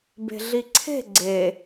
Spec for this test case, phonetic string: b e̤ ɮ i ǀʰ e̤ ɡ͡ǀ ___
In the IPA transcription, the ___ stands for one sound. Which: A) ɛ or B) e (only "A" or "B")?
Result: B